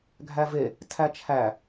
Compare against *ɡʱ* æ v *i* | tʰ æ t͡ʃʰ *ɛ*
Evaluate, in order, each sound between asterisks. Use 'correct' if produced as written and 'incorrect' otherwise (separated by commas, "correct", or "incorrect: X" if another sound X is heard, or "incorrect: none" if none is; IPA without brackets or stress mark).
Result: correct, incorrect: e, incorrect: æ